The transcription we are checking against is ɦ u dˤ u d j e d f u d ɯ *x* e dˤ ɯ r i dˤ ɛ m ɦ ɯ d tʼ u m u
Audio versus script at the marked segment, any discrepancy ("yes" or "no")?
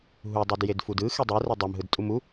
no